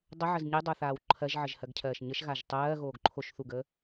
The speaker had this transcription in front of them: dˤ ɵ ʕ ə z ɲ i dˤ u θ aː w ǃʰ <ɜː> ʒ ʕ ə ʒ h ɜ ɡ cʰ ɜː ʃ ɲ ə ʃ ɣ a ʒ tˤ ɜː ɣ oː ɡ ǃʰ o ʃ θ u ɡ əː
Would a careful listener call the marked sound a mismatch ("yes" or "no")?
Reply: yes